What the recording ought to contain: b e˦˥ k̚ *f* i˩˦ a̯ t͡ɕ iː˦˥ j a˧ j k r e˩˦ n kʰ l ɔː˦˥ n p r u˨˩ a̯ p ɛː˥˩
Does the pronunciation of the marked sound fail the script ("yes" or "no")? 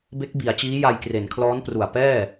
yes